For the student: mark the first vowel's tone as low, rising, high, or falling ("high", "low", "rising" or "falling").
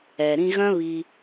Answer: low